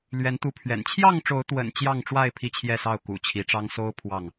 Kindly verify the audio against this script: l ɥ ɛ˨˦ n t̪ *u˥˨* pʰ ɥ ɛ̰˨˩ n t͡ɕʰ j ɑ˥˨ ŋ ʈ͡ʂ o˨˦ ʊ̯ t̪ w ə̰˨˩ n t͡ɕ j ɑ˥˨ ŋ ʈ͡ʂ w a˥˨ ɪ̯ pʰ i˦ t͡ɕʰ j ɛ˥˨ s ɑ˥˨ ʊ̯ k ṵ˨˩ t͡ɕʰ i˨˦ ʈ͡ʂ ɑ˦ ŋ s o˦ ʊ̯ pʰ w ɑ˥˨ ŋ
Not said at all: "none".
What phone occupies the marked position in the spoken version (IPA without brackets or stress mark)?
u˨˦